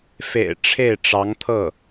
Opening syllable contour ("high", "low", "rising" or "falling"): low